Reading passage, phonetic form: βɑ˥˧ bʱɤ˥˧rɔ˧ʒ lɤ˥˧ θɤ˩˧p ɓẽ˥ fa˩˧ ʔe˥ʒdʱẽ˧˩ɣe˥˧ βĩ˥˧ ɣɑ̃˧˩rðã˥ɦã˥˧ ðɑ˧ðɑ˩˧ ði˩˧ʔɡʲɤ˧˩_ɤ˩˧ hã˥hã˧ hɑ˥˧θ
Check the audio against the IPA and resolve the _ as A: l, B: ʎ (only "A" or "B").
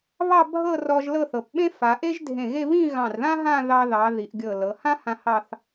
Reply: A